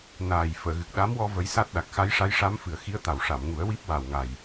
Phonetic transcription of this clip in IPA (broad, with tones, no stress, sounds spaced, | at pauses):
n aː˨˩ j f əː˨˩˨ ɣ ɨ˨˩ k̚ ɗ a˧˥ m w ɔ˧ v ə˧˥ j s a˦˥ t̚ ɗ a˨˩ k̚ x a˧˥ j ʂ a˧˥ j ʂ a˧˥ m f ɨ˨˩ ə̯ x i˧˥ ə̯ t̪ a˨˩ w ʂ a˨˩˨ m ŋ u˨˩˦ ə̯ w i˦˥ p̚ w a˨˩ w ŋ a˨˩ j